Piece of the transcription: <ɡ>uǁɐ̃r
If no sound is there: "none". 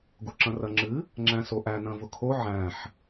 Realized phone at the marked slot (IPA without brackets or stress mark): ɡ